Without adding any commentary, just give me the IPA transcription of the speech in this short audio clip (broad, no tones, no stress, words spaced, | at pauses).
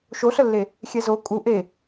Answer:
ʃoɬəlːe | xʲɛzo kʼu ʔe